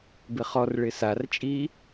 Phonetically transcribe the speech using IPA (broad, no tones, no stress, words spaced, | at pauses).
bɪχɔrɭɪ sart͡ʃʼiː